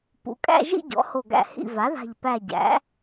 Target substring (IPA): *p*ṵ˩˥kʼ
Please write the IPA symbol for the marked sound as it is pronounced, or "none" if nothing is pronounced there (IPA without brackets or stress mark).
p